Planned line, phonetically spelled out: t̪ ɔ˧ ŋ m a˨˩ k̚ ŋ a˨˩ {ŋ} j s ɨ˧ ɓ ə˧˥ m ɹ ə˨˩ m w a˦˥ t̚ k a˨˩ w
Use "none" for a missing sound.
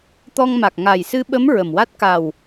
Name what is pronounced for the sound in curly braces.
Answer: none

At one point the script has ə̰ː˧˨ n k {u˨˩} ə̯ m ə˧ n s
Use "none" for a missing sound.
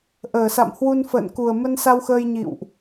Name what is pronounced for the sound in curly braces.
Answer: u˨˩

